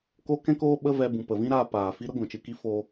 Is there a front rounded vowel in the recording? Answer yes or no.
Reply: no